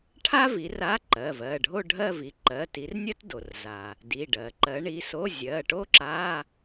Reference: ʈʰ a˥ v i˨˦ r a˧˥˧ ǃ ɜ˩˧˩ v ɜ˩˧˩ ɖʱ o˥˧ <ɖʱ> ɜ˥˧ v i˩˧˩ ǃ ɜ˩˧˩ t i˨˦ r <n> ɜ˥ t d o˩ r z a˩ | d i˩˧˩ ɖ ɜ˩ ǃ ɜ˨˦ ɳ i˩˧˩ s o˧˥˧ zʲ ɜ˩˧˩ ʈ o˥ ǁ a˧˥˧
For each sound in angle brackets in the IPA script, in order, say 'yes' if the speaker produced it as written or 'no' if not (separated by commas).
yes, no